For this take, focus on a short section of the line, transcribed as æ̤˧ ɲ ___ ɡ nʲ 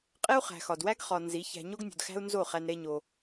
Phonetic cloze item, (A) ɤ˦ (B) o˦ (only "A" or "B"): B